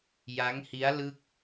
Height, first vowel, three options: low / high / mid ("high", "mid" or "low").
low